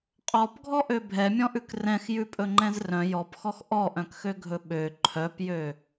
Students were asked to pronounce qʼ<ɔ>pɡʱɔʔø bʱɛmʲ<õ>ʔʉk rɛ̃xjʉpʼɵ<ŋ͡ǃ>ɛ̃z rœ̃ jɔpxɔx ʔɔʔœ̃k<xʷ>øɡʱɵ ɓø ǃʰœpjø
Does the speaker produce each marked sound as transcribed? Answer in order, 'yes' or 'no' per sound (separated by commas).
yes, no, yes, no